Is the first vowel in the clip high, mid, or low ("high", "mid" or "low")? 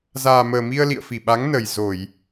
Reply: low